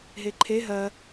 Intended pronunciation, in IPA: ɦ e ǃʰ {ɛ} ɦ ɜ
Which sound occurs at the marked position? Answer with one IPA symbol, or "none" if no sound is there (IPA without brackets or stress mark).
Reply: e